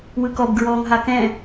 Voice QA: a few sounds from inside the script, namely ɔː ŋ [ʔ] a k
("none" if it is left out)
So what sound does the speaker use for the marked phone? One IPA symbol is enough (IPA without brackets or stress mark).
ɦ